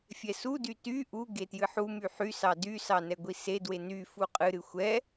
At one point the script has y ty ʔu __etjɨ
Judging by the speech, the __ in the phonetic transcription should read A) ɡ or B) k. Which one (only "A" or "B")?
A